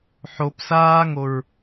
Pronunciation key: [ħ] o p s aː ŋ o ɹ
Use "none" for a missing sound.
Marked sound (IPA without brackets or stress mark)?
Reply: ħ